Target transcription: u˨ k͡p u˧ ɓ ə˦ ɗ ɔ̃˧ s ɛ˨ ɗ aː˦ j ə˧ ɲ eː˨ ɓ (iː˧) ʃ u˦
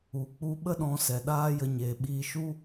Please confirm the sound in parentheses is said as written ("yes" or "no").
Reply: yes